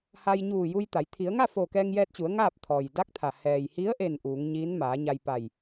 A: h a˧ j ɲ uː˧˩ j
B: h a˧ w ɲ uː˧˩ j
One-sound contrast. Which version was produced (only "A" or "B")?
A